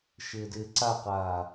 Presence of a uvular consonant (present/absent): present